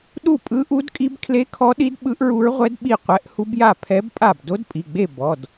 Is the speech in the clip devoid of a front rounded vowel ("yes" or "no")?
yes